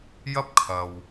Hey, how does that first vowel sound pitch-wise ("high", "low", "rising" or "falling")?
high